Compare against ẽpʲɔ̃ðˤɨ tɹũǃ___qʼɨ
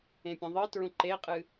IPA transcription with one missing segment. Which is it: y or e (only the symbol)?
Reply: e